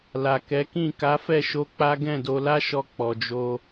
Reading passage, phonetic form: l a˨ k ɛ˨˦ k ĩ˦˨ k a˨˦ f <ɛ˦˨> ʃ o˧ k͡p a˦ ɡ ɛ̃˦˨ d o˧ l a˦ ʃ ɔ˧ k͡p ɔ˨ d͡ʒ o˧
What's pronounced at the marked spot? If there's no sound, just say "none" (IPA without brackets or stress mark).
ɛ˦˨